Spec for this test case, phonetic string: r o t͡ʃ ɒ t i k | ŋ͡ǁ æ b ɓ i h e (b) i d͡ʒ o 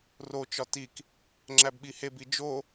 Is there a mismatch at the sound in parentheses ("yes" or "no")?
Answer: no